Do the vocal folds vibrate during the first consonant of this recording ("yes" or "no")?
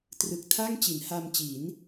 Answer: no